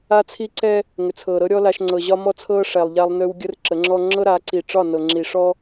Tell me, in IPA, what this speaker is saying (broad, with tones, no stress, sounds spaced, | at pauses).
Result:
a˦ t͡sʰ i˦ ǀ ɛ˦ | ŋ ʏ˨ t͡sʰ ɤː˨ ɾ ɤ˦ ɾʲ ɔ˦ l a˦ ʃ ŋ͡ǀ ɤ˨ ʑ ɒ˦ m ɔ˦ t͡sʰ ɤː˦ ʂ ɛ˨ lˠ ʎ a˦ lˠ n ʏː˦ w ɡʲ ə˦ r ǁ ə˨˦ ŋ͡ǁ ɔ˦ ŋ͡ǁ ɤ˦ ɾ a˨˦ ǀ i˨ ʈ͡ʂ ɒ˦˨ n ɤ˨ ŋ͡ǁ i˨ ʂ ɔ˦